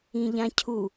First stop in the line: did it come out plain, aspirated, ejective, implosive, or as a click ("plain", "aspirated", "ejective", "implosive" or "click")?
aspirated